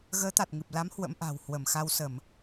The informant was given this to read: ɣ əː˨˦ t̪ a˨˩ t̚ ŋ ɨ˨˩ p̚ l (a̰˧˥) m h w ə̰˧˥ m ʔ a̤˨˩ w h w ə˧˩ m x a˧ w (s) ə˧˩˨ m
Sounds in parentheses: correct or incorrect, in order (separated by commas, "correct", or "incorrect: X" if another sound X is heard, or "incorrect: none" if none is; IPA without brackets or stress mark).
incorrect: a˨˦, correct